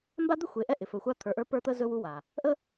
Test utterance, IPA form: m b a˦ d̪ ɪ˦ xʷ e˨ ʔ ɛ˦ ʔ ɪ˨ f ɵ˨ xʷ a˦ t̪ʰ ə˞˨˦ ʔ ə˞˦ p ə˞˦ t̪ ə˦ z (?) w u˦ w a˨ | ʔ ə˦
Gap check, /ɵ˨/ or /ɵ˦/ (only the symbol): ɵ˦